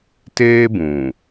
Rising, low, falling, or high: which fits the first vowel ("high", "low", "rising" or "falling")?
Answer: high